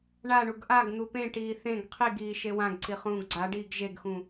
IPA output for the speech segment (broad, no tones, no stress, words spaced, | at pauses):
ɳaɳuɡ ʔaɡ n̪upẽʈiː θẽɡ qʰiɡiː ʃewãɡǀi χũːɡɡ͡ǀaɖiːɡ ʒeɡxũ